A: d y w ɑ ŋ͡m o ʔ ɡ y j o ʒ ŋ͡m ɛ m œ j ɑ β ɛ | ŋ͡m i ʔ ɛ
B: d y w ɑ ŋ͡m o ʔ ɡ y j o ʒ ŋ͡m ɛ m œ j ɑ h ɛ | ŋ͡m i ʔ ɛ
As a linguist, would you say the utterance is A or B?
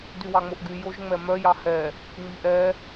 B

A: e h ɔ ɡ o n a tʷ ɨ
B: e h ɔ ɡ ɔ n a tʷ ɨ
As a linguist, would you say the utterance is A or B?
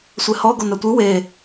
A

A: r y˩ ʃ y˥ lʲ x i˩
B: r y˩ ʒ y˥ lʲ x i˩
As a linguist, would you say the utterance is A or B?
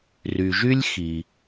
B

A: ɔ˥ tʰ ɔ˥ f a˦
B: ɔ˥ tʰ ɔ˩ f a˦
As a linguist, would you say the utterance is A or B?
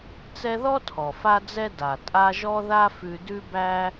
B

